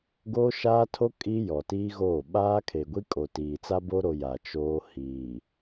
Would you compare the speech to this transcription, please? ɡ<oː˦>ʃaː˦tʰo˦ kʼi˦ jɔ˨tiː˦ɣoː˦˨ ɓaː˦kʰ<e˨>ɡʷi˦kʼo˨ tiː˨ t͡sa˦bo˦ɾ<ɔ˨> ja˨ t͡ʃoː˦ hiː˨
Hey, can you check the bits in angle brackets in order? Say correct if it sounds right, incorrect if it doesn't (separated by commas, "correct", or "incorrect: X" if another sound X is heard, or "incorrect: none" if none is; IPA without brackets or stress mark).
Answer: correct, correct, incorrect: o˨